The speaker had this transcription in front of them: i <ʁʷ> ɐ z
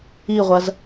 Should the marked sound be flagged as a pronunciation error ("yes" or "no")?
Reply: no